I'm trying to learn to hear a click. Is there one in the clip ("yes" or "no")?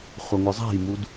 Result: no